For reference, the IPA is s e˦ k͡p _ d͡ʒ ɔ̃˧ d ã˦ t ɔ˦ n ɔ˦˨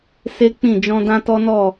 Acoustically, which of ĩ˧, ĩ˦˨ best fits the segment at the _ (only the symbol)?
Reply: ĩ˦˨